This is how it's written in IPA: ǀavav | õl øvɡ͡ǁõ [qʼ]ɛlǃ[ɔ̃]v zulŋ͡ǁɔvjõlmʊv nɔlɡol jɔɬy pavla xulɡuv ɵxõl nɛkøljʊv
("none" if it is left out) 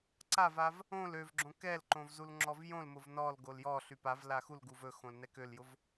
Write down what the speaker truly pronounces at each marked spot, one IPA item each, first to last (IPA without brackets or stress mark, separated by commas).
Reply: k, õ